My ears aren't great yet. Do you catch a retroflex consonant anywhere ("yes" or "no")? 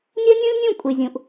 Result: no